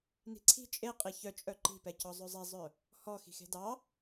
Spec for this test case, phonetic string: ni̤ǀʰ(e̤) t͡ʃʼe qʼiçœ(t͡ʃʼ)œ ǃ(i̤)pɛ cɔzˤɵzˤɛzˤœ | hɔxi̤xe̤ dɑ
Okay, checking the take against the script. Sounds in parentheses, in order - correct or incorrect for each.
incorrect, correct, correct

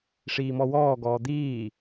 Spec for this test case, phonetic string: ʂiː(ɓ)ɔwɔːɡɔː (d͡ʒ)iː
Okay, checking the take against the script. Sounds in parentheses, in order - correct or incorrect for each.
incorrect, incorrect

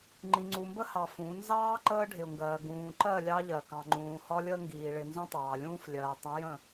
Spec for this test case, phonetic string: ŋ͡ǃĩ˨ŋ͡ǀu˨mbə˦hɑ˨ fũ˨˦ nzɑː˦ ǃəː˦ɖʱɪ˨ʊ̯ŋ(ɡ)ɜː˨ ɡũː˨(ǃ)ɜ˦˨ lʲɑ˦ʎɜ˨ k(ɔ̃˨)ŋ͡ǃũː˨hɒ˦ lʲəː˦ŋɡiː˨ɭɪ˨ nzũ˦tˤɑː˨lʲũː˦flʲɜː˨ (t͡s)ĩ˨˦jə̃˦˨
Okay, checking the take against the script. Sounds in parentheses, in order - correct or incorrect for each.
correct, correct, incorrect, incorrect

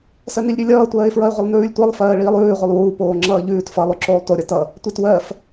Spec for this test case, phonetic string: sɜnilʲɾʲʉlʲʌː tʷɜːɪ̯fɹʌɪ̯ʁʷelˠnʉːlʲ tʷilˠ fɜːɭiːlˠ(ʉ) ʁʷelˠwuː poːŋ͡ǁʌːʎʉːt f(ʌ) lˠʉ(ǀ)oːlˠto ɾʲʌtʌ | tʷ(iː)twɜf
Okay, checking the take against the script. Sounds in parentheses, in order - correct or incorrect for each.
incorrect, correct, incorrect, incorrect

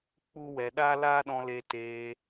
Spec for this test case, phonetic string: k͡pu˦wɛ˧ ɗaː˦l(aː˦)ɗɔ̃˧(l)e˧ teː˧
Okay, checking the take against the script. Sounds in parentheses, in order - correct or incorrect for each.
correct, correct

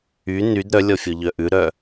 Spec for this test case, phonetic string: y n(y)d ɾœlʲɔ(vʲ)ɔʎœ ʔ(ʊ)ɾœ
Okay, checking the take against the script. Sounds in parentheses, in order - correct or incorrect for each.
correct, incorrect, incorrect

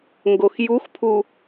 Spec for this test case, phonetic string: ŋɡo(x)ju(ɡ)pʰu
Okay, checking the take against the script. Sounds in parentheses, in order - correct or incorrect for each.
correct, incorrect

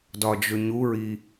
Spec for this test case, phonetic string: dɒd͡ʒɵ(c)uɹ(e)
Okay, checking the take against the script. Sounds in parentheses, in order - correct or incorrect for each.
incorrect, incorrect

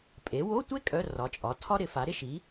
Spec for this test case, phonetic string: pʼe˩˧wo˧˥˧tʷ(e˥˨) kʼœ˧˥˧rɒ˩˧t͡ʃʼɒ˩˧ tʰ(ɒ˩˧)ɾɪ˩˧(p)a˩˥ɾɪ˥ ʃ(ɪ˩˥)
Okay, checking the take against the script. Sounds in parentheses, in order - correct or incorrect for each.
incorrect, incorrect, incorrect, incorrect

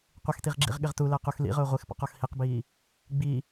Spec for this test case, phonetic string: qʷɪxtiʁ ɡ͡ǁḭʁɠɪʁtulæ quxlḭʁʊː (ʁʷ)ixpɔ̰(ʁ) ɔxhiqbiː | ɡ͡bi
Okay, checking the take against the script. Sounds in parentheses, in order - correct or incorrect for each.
correct, incorrect

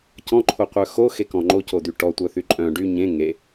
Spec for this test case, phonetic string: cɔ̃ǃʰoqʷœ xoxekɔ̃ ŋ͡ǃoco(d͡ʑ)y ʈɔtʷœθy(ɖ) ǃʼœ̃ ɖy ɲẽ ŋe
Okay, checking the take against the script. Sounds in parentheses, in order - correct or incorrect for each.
incorrect, incorrect

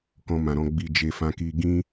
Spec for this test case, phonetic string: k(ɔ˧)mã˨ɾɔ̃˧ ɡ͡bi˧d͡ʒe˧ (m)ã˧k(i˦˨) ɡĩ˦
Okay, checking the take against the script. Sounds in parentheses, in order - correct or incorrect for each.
incorrect, incorrect, incorrect

